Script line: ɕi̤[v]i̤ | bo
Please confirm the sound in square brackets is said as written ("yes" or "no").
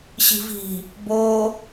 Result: yes